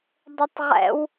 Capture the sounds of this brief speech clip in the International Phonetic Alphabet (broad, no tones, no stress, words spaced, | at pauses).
dˤɘtˤʁɛ̰w